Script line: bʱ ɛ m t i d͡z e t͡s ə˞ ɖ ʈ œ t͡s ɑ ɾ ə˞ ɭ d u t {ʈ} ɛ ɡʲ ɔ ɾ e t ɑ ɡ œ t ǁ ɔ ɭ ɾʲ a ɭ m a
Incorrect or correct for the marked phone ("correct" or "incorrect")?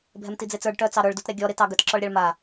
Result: incorrect